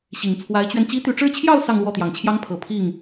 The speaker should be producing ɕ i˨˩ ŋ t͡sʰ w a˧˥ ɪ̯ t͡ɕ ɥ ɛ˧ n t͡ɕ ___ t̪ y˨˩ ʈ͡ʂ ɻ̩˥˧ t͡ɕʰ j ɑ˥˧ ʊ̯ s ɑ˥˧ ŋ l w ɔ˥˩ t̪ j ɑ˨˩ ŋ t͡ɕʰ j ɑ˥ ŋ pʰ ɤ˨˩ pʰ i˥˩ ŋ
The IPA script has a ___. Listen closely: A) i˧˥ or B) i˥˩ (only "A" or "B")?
A